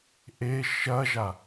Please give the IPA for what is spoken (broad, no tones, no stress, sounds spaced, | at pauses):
ʔ e ʃ ɐ ʒ a